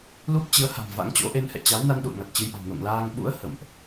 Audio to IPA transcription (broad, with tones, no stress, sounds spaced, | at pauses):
l u˦˥ p̚ t͡ɕ ɨ˨˦ ə̯ h a̤˨˩ m v a̰˧˥ ŋ t͡ɕ o̰˧˥ ʔ e˧ n h ɛ̰˧˨ t͡ɕ a˨˦ w n a˧ n ɗ ṵ˧˨ ə̯ ŋ a˨˩ t̚ t͡ɕ ɨ˧ j ʔ a̤˨˩ ŋ n o̰˧˨ ŋ l aː˧ ŋ ɓ ṵ˧˥ ə̯ h ə̰˧˨ m ʔ